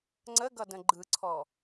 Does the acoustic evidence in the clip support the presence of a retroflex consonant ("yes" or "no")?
no